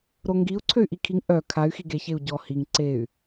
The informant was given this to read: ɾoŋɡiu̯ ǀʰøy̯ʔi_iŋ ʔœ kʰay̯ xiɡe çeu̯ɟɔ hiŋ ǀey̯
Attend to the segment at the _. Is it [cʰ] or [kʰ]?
kʰ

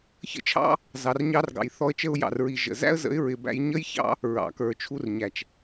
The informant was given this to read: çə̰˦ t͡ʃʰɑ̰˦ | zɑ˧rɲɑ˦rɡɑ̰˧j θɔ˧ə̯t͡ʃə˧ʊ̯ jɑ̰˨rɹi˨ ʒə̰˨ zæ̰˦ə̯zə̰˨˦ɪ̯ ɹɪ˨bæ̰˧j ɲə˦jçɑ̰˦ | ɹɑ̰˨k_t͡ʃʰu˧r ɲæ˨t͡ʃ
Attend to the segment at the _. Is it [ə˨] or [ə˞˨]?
ə˞˨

